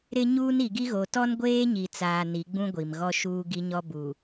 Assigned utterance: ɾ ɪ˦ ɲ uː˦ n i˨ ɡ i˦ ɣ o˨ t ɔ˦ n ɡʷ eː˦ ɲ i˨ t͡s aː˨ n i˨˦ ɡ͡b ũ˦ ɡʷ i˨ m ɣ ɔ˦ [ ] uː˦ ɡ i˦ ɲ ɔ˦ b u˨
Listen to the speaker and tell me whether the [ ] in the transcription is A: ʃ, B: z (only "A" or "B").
A